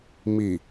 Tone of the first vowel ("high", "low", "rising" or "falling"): low